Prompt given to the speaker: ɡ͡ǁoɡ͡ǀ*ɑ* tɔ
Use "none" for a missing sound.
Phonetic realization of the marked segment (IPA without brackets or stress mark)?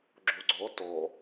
ɔ